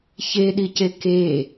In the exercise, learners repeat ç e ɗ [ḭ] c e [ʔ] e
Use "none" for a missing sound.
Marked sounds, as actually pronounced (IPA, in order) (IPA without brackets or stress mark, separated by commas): i, k